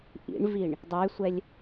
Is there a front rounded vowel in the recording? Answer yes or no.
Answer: yes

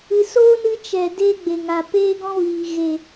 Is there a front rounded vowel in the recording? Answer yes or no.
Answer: no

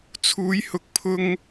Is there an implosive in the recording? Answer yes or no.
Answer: no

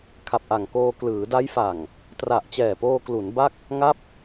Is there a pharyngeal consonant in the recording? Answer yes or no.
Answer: no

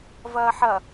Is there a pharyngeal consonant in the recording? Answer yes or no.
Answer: yes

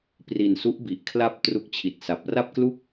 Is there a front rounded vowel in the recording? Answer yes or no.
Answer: no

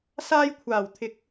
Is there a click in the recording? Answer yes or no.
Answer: no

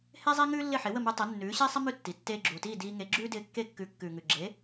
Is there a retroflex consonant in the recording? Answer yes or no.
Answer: no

